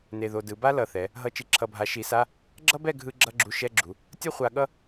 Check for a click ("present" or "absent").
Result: present